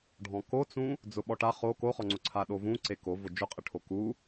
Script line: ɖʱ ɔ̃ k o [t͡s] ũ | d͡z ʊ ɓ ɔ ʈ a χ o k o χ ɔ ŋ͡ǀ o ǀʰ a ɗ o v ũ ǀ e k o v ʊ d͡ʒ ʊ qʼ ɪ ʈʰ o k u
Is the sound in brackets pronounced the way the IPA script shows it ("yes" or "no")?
yes